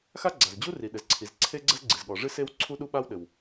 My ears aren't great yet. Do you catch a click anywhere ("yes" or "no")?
yes